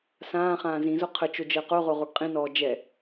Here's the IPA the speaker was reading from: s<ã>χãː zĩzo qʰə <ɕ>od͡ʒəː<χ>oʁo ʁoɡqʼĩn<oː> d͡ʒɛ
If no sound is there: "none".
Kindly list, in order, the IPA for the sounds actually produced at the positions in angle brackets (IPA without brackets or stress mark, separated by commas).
ãː, t͡ʃ, q, ɔː